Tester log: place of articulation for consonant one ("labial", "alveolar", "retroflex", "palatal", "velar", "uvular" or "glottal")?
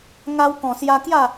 velar